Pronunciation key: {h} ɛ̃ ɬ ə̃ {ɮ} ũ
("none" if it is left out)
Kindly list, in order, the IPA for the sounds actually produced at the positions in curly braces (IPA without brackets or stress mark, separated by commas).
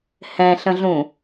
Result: h, ɮ